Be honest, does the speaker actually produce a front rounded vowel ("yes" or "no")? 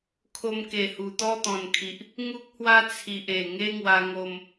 no